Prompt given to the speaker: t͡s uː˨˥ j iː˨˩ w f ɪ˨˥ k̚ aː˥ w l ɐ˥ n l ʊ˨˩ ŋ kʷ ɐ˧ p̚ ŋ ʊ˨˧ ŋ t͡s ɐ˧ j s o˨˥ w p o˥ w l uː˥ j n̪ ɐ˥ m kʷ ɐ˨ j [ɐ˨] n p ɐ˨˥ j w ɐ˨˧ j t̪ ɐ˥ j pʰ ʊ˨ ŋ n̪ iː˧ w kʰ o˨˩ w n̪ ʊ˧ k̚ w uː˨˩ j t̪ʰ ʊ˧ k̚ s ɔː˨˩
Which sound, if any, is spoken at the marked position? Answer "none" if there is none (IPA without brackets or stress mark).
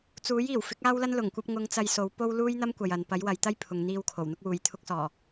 ɐ˨